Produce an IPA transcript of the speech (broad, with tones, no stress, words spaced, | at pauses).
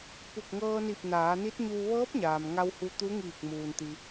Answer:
pu˧˩k̚ŋɤː˧ni˧˩p̚ naː˩˧ni˧˥t̚ɲuː˧ ʋɤː˧˥p̚ɲaː˩m ŋa˧whu˧ t̪u˧˥ ŋiː˧˩k̚muː˩nt̪i˩